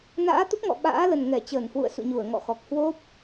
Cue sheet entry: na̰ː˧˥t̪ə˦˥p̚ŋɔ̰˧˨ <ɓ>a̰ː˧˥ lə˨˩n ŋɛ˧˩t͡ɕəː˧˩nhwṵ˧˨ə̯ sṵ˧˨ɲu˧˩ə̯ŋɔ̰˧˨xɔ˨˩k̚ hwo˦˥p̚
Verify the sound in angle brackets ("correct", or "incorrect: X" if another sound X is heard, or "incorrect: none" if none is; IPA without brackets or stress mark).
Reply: correct